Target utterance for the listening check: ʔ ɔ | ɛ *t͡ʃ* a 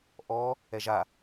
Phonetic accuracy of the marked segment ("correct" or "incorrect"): incorrect